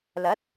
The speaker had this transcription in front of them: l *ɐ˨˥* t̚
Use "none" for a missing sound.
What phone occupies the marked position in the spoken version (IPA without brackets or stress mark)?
ɐ˨˥